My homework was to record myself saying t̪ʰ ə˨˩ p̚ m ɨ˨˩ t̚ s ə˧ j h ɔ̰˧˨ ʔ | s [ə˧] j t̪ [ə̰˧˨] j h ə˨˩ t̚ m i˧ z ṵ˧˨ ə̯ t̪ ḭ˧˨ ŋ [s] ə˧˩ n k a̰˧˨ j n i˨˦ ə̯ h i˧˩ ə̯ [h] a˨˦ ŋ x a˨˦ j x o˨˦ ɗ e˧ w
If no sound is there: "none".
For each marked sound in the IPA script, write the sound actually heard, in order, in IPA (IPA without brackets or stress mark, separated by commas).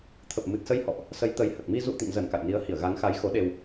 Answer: ə˨˦, ə˨˦, z, ɣ